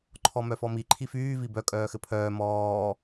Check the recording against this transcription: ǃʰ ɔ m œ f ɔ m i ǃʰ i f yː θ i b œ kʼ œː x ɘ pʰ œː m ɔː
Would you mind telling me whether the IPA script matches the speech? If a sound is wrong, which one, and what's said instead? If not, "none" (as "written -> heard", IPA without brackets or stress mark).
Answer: θ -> v